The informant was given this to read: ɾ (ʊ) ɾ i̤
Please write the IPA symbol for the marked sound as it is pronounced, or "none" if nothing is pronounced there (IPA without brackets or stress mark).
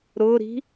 ʊ